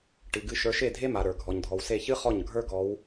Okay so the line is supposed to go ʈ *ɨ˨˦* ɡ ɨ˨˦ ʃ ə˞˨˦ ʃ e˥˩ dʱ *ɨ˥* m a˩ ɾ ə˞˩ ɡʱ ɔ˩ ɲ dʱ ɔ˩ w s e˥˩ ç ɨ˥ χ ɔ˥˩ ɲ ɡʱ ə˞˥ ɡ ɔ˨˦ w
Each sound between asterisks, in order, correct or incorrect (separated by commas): incorrect, incorrect